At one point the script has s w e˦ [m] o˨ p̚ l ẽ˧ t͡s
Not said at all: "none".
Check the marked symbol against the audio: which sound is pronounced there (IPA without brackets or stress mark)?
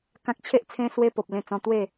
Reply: p